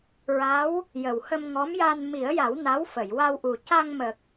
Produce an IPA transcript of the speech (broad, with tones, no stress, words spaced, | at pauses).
ɹa˧˥w | jə˨˩whə˧mŋɔ˧˥mja˧n mi˨˩˦ə̯ja˨˩˦w na˧˥wfə˨˩˨jwa˧wʔu˨˩ ca˧ŋmə˨˩k̚